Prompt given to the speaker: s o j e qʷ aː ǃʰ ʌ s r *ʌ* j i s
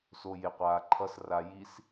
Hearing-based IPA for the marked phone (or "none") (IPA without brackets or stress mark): a